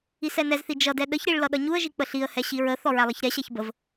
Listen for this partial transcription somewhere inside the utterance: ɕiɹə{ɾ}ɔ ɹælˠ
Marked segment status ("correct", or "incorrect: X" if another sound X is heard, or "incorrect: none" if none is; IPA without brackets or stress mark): incorrect: θ